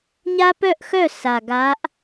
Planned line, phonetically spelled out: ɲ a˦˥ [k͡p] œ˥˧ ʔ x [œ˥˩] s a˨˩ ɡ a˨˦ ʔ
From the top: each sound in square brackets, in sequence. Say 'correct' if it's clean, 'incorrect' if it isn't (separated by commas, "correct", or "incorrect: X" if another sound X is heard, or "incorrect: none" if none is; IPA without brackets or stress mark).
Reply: incorrect: p, correct